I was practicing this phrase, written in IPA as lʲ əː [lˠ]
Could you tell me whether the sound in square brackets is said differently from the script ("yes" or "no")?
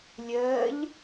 yes